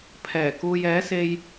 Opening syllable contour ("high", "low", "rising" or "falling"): low